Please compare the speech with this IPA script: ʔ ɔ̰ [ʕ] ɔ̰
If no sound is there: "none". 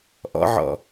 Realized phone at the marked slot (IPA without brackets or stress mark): ʕ